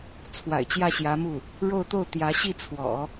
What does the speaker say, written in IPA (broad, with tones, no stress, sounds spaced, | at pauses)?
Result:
t͡sʰ w a̰˨˩ ɪ̯ t͡ɕ j ä˥˩ ɕ j ä˧˥ m u˥˩ | ɻ o˥˧ ʊ̯ t̪ o˥˩ ʊ̯ t̪ j ä˧˥ ɕ i˥˩ t͡sʰ w ɔ̰˨˩˦